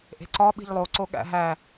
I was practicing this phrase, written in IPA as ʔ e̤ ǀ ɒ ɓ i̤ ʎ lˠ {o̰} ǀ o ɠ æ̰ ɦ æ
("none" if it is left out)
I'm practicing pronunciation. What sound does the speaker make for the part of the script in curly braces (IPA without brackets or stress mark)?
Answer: o